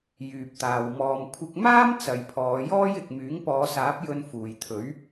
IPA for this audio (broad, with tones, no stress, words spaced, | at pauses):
jyː˨p̚t̪aː˨w mɔː˨mkʷʰɪ˧k̚maː˥m t͡sɐ˨jpʰɔː˨˧jɔː˥j ɪ˨k̚myː˨˥ŋ pɔː˨˧saː˨˥p̚jɵ˧n fuː˨jt̪ʰɵ˨˥ɥ